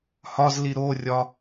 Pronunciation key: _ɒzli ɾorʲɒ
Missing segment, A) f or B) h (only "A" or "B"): B